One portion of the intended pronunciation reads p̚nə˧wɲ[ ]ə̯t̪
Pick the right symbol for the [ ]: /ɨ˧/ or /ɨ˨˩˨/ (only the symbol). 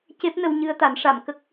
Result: ɨ˧